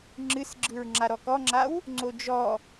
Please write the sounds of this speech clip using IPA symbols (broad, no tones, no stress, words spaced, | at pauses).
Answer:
ŋ͡ǁɨsɡ͡ǁɯɹ ŋ͡ǁaɾɔkɔŋ͡ǁaw | ŋ͡ǀod͡ʒɔ